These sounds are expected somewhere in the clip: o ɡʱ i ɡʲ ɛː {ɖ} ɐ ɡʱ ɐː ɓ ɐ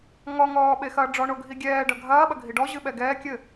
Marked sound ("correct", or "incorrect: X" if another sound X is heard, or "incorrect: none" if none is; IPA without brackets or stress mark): correct